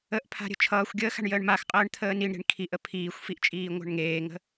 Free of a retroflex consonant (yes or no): no